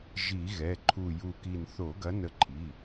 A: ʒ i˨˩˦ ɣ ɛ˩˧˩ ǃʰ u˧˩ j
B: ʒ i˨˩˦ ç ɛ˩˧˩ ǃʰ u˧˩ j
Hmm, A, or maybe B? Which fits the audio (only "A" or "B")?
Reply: A